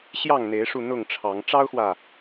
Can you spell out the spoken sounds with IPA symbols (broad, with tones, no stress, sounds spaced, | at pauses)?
ɕ j ɑ˥˨ ŋ n̪ e˨˦ ɪ̯ ʂ u˧ n̪ ʊ˥˨ ŋ ʈ͡ʂʰ ɑ˨˦ ŋ ʈ͡ʂ ɑ˦ ʊ̯ x w ä˨